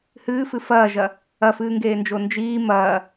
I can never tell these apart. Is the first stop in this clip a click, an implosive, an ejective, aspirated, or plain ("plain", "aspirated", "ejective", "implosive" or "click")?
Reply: plain